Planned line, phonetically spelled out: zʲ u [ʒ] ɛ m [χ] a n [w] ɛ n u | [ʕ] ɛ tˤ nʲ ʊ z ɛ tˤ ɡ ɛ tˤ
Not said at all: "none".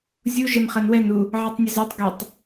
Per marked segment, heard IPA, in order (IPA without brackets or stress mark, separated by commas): ʒ, χ, w, ʕ